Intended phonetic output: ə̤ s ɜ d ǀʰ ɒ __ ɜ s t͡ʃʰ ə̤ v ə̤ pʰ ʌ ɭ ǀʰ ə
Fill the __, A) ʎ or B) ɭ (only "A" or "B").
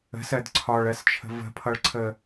B